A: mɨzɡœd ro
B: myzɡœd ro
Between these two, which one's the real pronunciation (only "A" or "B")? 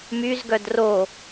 B